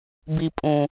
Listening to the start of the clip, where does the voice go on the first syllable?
low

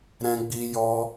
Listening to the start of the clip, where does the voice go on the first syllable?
high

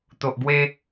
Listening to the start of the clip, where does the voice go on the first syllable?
low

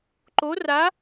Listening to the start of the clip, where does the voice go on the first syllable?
rising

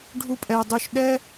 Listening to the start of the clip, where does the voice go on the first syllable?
high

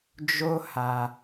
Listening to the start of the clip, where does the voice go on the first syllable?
high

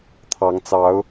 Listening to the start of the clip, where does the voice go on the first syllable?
rising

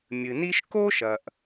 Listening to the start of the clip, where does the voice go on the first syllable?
low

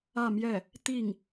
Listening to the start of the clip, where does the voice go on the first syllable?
falling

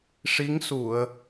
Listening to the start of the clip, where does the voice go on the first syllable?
rising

